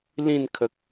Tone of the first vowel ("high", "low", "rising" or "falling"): falling